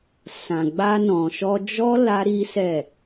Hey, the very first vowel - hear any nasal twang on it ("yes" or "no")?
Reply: yes